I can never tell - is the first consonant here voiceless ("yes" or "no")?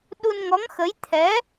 no